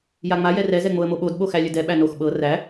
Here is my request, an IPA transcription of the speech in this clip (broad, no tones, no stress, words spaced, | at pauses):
jaŋ͡ma jɛrɛ zɛŋ͡moə̯moɓod ɓoxælʲɘdɛ ɓænox ɓɤ ræ